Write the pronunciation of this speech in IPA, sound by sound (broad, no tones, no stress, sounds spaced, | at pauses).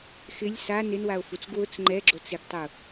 x ɪ lʲ s a n ɪ n w a o̯ f u t͡s ɡ w ʊ t͡s ŋ͡ǃ ɛ ɡ͡ǁ o t͡s ɪ ɡ tˤ ʊ